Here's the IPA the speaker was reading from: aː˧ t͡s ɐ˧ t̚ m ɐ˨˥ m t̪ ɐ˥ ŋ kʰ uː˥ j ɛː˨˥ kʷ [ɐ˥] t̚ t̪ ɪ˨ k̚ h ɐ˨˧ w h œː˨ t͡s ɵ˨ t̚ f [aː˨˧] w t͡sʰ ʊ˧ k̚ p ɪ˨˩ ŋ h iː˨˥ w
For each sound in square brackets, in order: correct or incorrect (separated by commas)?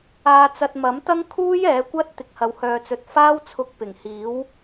correct, incorrect